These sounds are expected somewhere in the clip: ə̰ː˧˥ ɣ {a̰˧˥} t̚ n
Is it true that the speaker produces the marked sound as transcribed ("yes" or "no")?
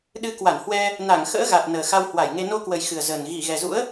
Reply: no